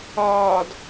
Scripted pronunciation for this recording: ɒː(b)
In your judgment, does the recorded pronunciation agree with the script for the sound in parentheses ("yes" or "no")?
no